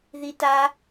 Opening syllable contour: high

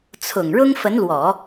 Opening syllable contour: low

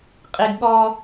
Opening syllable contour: high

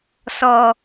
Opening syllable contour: high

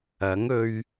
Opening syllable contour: rising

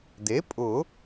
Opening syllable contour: rising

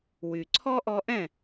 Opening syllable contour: low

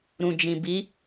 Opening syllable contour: low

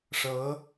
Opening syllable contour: rising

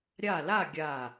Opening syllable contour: falling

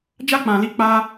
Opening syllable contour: high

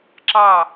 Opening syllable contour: falling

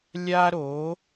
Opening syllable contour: high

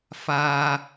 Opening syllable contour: high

